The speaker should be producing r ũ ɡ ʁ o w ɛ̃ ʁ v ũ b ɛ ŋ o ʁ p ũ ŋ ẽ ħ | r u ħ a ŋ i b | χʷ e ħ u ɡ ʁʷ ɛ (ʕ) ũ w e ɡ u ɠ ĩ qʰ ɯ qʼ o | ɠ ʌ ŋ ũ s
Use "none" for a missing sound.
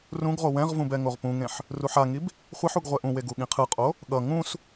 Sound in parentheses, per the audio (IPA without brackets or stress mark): ʔ